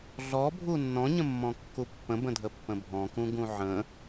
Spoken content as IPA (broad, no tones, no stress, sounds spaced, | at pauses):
ɮ ɔ bʱ u nː ɔ̃ ɲ ə̃ mː ɔ̃ kː u pː ə̃ b ə̃ dʱ ə pː ə̃ bʱ ɔ̃ k ũ ɡ ũ ʕ ə̃